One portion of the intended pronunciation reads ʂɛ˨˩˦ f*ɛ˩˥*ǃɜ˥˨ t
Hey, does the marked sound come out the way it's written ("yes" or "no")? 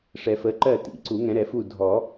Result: no